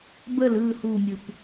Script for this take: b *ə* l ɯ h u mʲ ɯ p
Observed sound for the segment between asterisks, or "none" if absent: ə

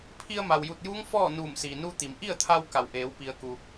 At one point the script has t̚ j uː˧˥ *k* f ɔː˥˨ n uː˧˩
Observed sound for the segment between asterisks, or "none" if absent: ŋ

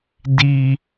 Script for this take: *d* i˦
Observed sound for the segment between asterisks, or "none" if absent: d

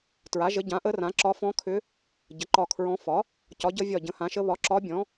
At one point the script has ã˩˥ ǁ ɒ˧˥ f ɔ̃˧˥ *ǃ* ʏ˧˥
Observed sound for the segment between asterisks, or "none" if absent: kʰ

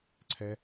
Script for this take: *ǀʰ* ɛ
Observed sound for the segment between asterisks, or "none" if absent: ǀʰ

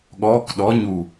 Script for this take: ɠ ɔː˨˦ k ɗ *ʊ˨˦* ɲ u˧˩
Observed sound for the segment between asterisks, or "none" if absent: ɔ˨˦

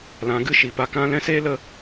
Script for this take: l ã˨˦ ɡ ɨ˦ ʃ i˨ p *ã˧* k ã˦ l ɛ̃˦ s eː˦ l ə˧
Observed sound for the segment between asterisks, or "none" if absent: a˧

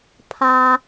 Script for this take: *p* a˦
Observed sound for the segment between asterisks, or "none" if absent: pʰ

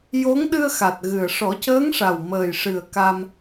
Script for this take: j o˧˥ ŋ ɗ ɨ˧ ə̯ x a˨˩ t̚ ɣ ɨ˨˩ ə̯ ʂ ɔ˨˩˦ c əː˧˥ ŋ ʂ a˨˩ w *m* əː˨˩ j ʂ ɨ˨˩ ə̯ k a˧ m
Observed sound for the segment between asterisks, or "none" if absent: m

